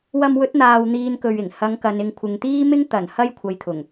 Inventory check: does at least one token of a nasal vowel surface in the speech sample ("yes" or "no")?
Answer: no